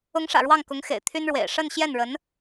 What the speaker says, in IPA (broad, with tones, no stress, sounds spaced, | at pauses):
ʊ˧˥ ŋ ʂ ä̰˨˩ ɻ w ɑ˥˩ ŋ k ʊ˧˥ ŋ x ḛ˨˩ ɪ̯ t̪ʰ y˥ n ɻ w ḛ˨˩ ɪ̯ ʂ ə˥˧ n ɕ j ɛ˥˩ n ɻ ə˧˥ n